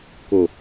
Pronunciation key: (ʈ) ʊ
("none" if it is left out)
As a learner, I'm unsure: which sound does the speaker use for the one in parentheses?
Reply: k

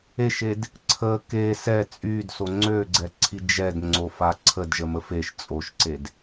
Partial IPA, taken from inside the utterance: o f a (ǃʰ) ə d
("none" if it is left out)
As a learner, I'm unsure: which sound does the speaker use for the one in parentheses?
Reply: ǀʰ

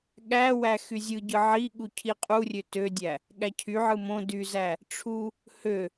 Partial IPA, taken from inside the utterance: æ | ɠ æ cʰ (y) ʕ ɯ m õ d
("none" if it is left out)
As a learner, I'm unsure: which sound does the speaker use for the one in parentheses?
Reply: y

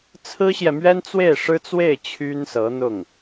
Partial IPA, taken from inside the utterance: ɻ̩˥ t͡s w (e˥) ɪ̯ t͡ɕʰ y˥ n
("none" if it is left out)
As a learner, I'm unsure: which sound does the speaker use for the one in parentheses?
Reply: e˥˩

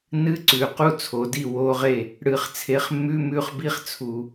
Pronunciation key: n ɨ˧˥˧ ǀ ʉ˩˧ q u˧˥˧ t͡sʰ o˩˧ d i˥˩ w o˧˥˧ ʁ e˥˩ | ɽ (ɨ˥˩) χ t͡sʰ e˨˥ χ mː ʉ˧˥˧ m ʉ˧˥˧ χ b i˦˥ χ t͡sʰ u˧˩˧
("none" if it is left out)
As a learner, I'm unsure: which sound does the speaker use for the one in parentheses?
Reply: ɨ˧˩˧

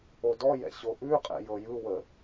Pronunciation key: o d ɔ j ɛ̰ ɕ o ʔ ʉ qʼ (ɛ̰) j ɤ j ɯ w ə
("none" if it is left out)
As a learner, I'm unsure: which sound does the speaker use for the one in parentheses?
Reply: ɛ̰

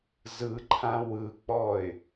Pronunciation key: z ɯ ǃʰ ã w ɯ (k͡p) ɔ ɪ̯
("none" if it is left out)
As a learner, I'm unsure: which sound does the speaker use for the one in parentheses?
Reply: k͡p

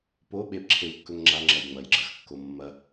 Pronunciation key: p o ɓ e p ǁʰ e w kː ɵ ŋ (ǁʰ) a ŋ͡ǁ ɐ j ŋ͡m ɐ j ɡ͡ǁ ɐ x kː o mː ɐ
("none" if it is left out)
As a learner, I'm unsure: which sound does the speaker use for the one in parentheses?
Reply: ŋ͡ǁ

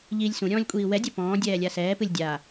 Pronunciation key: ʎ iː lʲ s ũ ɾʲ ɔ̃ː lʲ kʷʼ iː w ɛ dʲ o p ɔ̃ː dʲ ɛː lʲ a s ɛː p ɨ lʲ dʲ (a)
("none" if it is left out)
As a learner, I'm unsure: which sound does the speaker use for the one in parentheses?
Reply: a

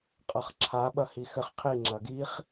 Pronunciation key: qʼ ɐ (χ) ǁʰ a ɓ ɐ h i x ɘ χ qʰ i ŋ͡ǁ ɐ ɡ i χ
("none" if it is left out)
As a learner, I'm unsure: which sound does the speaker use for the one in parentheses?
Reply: χ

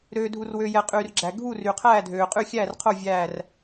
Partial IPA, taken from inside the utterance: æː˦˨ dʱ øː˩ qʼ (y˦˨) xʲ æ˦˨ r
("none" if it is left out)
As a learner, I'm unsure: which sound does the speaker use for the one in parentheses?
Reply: y˦˨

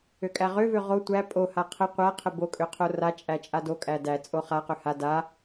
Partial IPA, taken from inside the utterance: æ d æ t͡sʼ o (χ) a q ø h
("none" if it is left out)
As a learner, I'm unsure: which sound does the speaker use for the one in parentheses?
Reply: χ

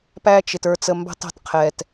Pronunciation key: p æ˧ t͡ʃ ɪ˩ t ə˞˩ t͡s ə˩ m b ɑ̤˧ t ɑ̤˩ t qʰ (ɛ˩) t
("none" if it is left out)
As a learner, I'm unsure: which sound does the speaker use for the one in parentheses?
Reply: ɛ˩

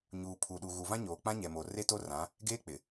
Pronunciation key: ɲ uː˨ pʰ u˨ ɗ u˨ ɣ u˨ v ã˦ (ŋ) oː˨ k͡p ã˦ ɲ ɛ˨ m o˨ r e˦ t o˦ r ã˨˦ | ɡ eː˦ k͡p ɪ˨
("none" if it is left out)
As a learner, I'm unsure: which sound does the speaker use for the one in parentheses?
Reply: ɲ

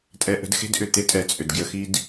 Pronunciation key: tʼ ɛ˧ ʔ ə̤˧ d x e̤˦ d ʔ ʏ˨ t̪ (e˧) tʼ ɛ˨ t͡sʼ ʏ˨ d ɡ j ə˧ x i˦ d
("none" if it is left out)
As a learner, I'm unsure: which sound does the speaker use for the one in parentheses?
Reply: e˦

